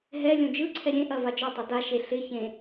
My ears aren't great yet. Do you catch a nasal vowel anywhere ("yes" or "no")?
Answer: yes